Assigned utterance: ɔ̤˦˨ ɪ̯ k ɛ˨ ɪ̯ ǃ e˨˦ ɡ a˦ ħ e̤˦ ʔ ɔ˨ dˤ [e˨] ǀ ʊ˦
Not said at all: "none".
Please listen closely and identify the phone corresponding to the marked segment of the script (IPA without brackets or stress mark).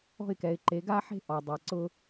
e˨